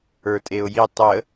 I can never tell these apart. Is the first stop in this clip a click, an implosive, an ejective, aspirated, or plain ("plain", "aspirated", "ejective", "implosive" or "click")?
ejective